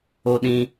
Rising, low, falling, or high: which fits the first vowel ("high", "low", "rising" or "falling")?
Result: high